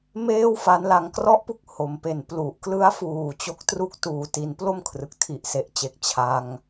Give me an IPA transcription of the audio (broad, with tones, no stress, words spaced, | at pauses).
meː˥˩wfa˦˥n la˧ŋ krɔ˥˩ʔpu˦˥k̚ ho˩˦mpe˨˩n plu˨˩ʔklɯ˦˥a̯fuː˨˩ t͡ɕo˦˥k̚tru˦˥k̚tuː˨˩ ti˩˦nplo˥˩m kʰrɯ˨˩k̚tʰi˨˩ʔse˨˩ʔt͡ɕe˨˩k̚ t͡ɕʰa˧ŋ